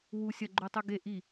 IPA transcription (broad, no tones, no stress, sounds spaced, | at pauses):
w u sʲ ɐ ɡ͡ǃ ʉ tˤ ʉ ɡ e ʔ i